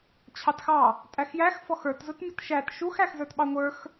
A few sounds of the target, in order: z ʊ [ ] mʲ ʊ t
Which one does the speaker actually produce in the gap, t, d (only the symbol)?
t